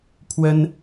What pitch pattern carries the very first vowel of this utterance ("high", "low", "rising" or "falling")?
high